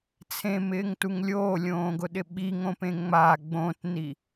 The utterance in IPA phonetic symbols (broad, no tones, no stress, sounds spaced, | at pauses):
t͡sʰ ẽ m ɪː ŋ t u ŋ lʲ oː lʲ õː ɡ ʊ ɗ ɪ ɓ i ŋ õ p ẽ ŋ͡m a ɡ͡b õ t n i